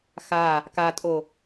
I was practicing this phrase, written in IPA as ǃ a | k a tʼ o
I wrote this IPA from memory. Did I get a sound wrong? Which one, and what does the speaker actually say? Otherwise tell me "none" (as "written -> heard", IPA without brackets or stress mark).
ǃ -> x